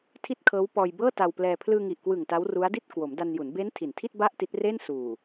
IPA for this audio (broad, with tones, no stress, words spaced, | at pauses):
tʰi˥˩t̚kʰɤː˦˥wpɔː˧j bɤː˥˩ta˧wplɛː˧ pʰlɯː˧ŋi˨˩ʔkwɯ˨˩ŋ ta˦˥wru˦˥a̯di˥˩t̚ kwo˩˦mda˧nju˩˦n be˦˥n tʰi˨˩ntʰi˥˩t̚ ba˥˩ʔti˦˥t̚reː˥˩n suː˨˩